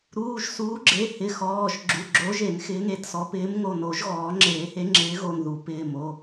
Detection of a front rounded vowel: absent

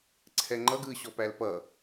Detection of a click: present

